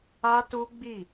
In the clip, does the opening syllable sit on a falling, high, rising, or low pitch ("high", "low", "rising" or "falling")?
high